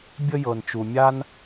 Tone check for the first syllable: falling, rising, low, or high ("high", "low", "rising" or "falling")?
high